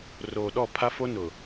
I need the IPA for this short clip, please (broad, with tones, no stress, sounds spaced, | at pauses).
r oː˨ ɗ ɔ˦˨ pʰ a˦ f o˦ n ʊ˨